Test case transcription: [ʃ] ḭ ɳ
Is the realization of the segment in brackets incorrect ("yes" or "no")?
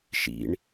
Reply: no